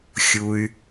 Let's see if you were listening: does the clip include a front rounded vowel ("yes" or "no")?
yes